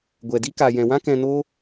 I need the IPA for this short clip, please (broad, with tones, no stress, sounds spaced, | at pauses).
ɡʷ ɛ˨ d i˦ k a˨ j ɛ̃˨ w ã˦ k ɛ̃˧ n o˦